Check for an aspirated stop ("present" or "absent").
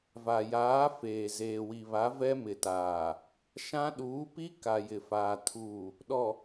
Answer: present